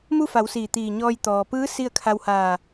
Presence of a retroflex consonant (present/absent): absent